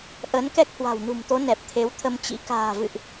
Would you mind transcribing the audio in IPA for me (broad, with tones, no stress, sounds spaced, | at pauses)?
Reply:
ʔ ə˨˦ n k ɛ˦˥ k̚ h w a̤˨˩ w n ṳ˨˩ m t̪ o˨˦ n ɛ˨˩ p̚ t̪ʰ e˨˦ w t̪ʰ ə˧ m t͡ɕ ḭ˧˥ k a̤ː˨˩ v ɨ̰˧˨ ʔ